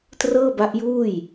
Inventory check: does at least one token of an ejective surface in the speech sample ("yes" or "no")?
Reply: no